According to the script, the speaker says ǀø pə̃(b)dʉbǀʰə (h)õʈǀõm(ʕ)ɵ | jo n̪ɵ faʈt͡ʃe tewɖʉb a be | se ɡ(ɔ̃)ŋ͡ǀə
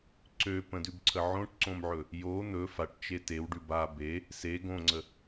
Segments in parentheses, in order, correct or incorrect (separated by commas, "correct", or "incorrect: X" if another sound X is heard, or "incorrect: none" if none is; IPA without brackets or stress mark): incorrect: none, incorrect: ʕ, correct, incorrect: õ